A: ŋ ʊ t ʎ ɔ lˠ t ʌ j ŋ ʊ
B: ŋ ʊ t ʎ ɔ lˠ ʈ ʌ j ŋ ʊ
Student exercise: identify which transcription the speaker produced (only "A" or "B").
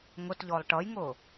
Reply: B